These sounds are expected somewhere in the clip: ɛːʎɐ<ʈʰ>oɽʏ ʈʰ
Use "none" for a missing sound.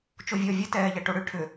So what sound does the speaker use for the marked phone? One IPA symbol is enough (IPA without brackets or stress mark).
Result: ʈ